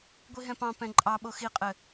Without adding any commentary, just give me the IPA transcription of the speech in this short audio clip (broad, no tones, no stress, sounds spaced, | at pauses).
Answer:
ɡʷ i ɦ ɛ̃ p ɑ̃ p ɛ̃ ǃʼ ɑ ɓ o x i qʼ ɘ